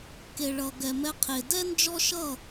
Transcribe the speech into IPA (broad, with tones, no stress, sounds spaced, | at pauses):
k e˨ ɭ ʌ˨ ɡ ɛ˨ m ɛ˧ qʰ e˨ d ɛ˦ n d͡ʒ ɔ˦ ʃ ʌ˦˨